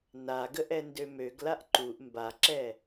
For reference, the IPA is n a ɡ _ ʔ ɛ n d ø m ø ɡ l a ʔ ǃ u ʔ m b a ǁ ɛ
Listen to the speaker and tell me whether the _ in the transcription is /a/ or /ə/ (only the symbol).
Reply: ə